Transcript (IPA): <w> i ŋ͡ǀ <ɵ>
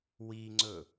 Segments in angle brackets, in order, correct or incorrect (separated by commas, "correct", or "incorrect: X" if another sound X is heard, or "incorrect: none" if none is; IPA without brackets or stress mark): correct, correct